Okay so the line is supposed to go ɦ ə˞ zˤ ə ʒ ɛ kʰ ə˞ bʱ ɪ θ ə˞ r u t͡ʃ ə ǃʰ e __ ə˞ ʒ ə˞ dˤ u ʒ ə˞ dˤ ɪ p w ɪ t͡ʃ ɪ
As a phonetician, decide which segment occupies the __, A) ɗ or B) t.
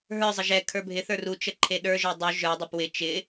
A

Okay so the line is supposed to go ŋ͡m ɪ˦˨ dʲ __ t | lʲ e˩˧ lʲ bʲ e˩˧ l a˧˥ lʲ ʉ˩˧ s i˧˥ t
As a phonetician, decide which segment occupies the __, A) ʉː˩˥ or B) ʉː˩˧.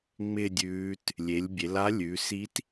B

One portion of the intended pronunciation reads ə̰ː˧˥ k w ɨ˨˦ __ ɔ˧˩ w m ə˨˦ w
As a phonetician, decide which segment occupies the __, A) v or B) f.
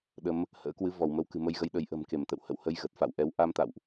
A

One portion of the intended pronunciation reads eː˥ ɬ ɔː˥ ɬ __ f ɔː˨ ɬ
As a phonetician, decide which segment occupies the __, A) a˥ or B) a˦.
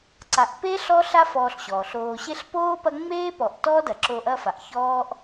A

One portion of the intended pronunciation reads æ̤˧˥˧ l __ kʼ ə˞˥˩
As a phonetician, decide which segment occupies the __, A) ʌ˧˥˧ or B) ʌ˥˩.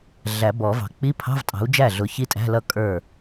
B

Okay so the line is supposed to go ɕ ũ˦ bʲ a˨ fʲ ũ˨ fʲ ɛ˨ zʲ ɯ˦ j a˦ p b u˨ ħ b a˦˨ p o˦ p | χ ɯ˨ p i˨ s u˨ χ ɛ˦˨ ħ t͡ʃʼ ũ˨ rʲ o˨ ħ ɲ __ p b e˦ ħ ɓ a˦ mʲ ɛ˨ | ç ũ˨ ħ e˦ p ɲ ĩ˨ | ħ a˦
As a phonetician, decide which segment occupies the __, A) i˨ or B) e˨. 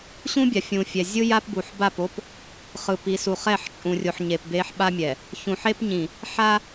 B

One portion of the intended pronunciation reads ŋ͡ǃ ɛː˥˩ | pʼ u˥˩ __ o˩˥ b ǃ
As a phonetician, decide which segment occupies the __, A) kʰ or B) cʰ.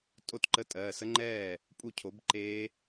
B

